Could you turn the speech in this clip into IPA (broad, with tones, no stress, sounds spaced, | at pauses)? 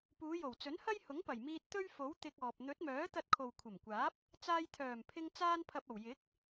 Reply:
p uː˨˧ j o˨˩ w t͡s ɵ˨˥ n h ɐ˥ j h ʊ˨˥ ŋ p ɐ˨˩ j m iː˧ t̚ t̪ ɵ˥ ɥ f o˨˥ w t̪ ɪ˧ k̚ ɔː˨ p̚ n̪ ɵ˨˥ t̚ m œː˨˥ t̪ ɐ˧ t̚ kʰ o˨ w kʷʰ ɐ˨˩ m kʷ aː˨˥ p̚ | t͡s aː˧ j t̪ʰ œː˨˩ m pʰ ɪ˧ ŋ t͡s aː˥ n pʰ ɐ˧ p̚ ɐ˨˩ w j ɪ˨˥ k̚